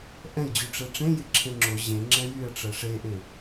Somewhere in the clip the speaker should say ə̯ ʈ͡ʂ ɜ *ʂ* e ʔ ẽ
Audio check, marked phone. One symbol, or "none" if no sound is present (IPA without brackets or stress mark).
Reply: ʂ